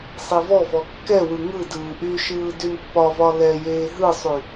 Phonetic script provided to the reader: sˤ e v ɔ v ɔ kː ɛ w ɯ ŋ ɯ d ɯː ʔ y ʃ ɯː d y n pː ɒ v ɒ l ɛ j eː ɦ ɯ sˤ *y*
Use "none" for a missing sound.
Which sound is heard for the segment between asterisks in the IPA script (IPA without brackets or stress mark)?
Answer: y